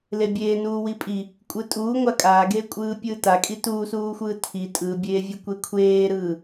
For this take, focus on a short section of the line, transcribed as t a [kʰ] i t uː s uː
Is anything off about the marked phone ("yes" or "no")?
yes